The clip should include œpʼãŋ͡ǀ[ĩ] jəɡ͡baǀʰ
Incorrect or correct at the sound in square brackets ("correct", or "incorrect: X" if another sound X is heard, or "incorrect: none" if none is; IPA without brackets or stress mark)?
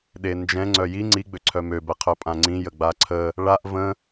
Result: correct